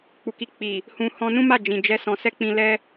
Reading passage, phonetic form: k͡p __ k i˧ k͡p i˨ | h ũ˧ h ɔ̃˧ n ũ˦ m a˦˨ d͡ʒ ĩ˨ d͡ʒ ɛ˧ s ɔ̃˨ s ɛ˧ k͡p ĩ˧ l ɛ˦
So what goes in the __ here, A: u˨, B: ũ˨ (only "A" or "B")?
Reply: A